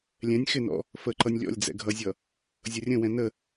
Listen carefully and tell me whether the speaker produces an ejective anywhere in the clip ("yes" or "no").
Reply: no